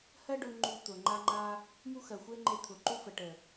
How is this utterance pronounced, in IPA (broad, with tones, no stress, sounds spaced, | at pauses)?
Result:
h ɜ˦ ɖ ʊ˧ ŋ͡ǃ u˧ t̪ ʊ˨ ŋ͡ǃ a˧ ŋ͡ǃ a˧ | m u˦ x ɜ˨ xʷ e˦ ŋ͡ǃ e˧ t̪ʰ ʊ˨ ǃ u˦ f ə˨ ʈ ə˨